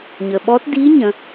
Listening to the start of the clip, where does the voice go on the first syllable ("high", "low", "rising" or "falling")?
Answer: low